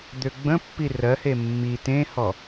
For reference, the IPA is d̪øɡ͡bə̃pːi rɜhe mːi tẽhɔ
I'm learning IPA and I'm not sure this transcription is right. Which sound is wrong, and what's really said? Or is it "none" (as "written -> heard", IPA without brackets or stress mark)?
none